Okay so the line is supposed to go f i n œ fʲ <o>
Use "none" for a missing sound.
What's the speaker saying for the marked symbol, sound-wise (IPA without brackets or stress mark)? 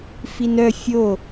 o